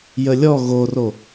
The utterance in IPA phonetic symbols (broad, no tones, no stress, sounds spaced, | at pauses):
j ə lʲ ɔ ɣ o r o